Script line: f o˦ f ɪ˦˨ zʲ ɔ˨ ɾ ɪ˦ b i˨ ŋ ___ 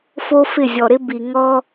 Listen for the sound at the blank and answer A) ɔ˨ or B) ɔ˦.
B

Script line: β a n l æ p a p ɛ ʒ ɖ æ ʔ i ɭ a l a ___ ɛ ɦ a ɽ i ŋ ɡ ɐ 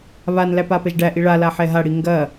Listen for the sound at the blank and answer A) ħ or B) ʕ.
A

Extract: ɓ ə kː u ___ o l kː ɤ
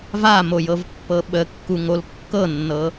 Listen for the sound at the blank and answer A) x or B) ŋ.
B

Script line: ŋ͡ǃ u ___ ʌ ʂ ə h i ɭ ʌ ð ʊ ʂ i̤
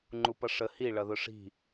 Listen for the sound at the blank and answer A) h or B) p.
B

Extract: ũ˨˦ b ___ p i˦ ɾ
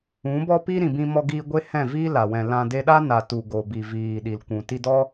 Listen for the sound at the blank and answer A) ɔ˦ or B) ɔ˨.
A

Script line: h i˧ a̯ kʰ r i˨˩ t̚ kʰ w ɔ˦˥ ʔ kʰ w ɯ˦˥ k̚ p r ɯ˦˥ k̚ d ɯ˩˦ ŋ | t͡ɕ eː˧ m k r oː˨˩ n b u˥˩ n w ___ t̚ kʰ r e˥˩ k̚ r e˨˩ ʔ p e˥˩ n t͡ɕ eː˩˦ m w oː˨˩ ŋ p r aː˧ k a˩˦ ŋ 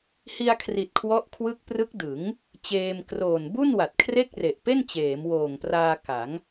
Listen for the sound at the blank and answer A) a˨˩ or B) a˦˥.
A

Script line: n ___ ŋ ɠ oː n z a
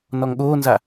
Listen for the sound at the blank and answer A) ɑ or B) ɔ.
B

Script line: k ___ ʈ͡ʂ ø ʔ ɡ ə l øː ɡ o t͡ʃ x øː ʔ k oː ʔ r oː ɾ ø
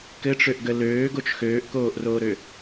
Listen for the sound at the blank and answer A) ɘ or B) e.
A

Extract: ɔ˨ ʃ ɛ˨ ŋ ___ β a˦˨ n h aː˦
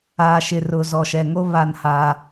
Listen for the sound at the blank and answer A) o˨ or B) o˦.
B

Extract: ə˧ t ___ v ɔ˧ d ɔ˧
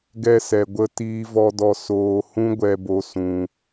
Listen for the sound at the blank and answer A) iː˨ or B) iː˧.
B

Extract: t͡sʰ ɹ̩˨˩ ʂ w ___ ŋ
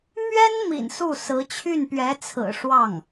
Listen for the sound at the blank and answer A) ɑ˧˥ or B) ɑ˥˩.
B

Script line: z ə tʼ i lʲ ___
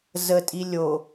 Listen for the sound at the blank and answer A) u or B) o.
B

